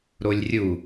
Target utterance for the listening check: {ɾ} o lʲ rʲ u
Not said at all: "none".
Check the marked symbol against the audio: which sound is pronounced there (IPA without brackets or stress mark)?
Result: ɾ